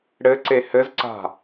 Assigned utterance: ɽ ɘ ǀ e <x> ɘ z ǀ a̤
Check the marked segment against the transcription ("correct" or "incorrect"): incorrect